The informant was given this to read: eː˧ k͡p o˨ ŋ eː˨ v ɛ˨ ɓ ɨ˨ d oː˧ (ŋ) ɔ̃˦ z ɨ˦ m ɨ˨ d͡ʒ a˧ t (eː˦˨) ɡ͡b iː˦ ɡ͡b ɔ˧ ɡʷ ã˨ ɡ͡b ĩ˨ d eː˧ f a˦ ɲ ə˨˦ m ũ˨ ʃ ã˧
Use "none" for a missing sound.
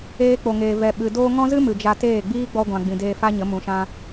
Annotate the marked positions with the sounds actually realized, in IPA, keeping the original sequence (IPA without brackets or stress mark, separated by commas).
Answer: ŋ, eː˦˨